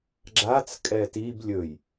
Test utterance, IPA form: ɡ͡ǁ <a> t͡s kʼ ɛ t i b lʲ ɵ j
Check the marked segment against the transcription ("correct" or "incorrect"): correct